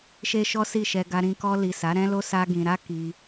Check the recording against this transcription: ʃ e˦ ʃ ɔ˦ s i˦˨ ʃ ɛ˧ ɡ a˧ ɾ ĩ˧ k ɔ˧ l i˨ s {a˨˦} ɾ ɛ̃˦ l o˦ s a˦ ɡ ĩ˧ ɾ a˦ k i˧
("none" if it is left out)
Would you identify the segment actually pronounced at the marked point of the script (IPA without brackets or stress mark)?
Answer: a˨˦